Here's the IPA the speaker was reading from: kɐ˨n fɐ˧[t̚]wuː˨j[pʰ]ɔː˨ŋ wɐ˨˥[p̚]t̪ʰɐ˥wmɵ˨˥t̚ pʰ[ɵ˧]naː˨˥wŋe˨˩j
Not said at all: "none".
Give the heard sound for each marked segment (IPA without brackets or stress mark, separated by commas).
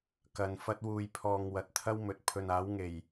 t̚, pʰ, t̚, ɵ˨